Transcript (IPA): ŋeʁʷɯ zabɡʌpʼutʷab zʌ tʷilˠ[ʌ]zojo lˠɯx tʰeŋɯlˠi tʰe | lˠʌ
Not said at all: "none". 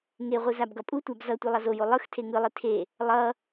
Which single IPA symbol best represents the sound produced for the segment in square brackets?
ʌ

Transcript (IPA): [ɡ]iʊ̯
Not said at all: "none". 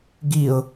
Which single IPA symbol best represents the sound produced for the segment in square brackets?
ɡ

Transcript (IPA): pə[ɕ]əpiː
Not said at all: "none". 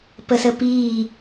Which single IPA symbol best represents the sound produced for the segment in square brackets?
s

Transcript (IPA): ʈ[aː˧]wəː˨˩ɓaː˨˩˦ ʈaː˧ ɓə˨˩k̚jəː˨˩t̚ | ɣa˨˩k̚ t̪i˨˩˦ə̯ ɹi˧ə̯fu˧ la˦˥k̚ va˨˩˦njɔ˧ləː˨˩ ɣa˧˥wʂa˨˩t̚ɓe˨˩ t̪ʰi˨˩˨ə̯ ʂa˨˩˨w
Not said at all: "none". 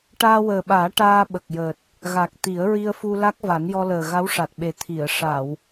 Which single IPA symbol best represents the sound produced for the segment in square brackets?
aː˧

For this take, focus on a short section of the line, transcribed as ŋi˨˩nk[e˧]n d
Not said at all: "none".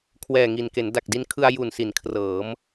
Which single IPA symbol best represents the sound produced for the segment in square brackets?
e˩˦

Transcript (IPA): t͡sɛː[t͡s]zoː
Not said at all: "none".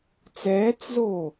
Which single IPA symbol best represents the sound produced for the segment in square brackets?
t͡s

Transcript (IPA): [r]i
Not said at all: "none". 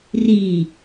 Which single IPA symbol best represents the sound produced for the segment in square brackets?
r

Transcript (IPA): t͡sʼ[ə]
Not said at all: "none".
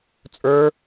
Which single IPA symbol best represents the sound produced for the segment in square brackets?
ə˞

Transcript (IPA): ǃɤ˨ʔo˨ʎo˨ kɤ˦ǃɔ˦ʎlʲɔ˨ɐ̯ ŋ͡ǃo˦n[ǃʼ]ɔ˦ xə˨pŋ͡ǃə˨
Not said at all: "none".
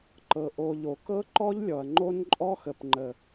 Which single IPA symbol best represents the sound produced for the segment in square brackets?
ǃʼ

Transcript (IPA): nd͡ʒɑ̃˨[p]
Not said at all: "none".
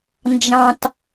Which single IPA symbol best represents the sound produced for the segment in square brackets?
t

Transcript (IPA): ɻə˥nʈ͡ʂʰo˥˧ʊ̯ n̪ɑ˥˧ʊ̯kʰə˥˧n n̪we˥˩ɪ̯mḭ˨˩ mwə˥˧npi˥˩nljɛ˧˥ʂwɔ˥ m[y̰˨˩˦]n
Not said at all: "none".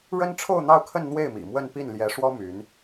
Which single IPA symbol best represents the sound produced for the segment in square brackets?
y˧˥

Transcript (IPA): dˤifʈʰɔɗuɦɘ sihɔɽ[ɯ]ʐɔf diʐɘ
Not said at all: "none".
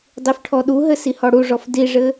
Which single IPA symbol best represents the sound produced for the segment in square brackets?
u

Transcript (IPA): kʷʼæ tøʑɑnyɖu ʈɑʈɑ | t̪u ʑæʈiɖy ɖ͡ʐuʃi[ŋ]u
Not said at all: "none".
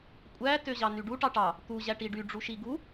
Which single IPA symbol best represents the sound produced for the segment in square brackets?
ɡ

